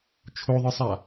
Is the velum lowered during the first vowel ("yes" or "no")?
no